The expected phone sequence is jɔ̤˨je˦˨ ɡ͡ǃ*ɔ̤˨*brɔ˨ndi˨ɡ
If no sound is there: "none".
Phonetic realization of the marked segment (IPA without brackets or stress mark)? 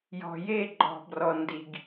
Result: ɔ̤˨